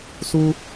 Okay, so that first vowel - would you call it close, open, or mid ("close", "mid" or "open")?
close